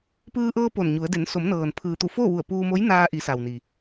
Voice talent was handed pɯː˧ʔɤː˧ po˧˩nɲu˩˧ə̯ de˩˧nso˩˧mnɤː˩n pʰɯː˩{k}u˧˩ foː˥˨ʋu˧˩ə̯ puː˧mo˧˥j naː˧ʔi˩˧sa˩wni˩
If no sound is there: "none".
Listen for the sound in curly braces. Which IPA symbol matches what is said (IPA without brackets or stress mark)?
t̪